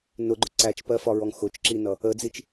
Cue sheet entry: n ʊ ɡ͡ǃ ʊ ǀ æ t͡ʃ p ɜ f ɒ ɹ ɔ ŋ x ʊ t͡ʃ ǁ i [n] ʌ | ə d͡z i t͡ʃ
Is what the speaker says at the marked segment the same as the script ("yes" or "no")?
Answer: yes